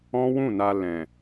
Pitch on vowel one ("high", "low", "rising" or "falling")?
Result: high